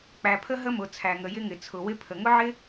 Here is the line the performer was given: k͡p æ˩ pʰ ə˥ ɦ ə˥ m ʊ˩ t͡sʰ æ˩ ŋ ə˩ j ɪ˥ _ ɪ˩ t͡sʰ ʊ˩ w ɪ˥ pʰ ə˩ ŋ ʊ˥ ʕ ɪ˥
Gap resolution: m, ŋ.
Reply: ŋ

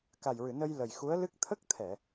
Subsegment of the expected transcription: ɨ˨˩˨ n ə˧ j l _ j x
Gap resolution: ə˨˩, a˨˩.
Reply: ə˨˩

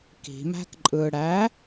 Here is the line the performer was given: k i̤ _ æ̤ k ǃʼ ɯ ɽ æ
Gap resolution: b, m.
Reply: m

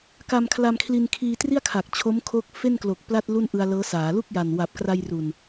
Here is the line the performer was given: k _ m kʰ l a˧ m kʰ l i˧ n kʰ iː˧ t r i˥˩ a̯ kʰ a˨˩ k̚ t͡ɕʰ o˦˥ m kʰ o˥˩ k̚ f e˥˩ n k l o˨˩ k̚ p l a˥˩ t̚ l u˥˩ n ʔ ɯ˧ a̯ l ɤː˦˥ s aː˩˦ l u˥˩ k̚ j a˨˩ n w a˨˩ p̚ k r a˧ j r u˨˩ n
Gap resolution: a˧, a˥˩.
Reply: a˧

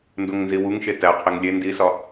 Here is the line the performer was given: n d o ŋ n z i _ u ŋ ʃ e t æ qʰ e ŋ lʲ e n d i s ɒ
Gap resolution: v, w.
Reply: w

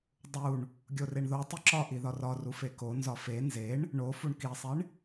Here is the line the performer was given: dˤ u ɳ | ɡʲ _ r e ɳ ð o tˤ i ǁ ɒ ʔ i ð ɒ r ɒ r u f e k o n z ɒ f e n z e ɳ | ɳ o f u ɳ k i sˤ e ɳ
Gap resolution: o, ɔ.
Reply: o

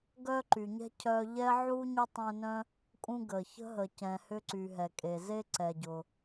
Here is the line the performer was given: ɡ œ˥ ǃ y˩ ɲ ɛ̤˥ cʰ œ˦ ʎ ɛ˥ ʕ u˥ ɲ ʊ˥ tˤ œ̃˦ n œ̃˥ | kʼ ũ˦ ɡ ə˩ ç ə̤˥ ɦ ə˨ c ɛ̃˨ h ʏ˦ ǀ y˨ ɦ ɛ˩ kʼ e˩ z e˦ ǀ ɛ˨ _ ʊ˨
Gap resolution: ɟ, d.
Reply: ɟ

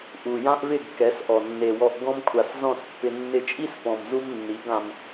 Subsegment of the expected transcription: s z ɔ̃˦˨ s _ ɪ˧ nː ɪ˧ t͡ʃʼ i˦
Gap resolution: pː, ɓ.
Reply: pː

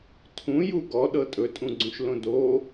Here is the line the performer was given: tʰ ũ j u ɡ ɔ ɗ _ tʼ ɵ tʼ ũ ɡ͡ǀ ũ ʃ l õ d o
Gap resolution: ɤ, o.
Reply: ɤ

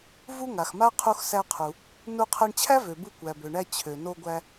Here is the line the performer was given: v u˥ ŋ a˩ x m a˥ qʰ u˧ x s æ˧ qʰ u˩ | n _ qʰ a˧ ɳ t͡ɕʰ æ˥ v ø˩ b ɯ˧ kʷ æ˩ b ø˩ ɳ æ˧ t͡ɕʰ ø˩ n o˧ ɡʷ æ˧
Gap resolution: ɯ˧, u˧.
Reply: u˧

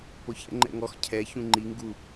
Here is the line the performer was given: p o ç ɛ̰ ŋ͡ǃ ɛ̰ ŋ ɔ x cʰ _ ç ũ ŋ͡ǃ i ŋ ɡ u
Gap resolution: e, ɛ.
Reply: ɛ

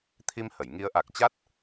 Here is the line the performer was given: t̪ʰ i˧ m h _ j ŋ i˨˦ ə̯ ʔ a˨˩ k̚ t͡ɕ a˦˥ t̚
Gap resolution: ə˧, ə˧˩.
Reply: ə˧˩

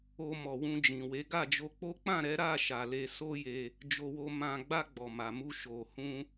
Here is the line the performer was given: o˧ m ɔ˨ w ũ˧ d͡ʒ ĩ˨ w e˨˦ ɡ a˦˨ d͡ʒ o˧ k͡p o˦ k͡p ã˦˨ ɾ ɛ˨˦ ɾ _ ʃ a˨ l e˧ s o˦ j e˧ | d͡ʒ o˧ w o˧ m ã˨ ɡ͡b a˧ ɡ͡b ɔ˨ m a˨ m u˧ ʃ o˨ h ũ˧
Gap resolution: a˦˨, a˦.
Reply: a˦˨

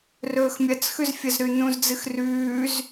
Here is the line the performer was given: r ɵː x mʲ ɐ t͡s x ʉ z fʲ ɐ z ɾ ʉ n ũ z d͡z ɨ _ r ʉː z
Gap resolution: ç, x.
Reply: x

